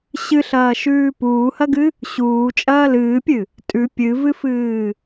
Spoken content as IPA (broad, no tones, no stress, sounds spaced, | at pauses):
ɕ ɨ ɬ ɐː ʃ ʉː p uː h ɐ ɡ ɨ | ɕ uː t͡ʃʼ ɐː l ɨː pʲ ɨ | tʼ ʉ pʲ ɨ v ɨ f ɨː